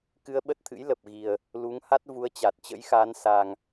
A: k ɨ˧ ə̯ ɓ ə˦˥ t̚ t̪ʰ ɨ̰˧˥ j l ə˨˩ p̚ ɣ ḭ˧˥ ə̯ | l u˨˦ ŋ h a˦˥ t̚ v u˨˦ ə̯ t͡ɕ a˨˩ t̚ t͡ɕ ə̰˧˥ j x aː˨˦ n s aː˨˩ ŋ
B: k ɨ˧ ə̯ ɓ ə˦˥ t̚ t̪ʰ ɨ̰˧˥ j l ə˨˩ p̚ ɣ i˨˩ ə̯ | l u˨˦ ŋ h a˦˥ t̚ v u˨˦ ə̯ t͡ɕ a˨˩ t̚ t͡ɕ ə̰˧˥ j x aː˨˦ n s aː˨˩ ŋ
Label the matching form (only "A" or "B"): B